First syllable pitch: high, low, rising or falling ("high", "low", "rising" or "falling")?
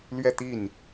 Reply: falling